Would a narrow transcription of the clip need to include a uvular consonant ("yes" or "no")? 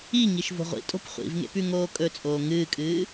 yes